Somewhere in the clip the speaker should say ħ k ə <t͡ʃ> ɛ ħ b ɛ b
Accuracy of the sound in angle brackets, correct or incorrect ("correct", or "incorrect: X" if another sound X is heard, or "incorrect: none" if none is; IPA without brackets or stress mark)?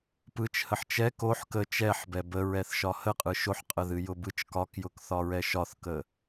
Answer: correct